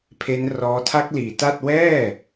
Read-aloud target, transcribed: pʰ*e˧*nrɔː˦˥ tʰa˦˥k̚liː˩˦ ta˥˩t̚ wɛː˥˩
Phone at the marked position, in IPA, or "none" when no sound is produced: e˦˥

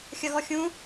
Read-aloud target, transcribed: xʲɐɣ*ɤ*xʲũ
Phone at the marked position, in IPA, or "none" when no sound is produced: ɔ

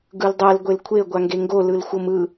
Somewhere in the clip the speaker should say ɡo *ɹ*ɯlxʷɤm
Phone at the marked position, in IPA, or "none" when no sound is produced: l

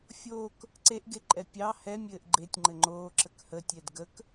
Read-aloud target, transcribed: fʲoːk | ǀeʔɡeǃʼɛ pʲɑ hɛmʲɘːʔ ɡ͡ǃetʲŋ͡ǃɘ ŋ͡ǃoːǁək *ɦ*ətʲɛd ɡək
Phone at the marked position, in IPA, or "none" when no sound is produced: h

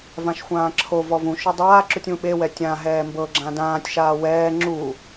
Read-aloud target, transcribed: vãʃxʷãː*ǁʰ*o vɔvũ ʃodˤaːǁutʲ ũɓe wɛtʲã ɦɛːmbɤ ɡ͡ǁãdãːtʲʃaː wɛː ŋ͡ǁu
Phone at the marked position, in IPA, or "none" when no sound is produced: ǁʰ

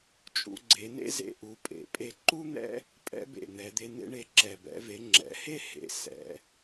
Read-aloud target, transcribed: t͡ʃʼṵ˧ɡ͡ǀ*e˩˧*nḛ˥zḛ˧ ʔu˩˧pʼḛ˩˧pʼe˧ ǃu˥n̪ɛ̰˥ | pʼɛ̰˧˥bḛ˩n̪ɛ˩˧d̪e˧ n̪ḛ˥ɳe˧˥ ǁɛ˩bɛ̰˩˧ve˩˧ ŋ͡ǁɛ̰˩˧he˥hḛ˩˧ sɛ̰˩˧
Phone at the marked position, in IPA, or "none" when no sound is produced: e˩˧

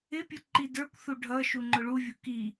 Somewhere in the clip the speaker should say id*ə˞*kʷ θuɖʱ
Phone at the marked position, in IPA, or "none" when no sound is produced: ə˞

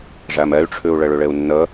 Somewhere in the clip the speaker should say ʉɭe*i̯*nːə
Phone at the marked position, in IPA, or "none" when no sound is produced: u̯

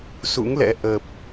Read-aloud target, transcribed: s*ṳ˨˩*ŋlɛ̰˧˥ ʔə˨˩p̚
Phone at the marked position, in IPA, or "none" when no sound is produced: ṵ˧˥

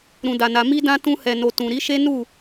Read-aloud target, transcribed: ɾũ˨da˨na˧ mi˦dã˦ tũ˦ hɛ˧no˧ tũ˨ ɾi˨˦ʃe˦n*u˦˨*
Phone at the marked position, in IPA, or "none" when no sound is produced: u˦˨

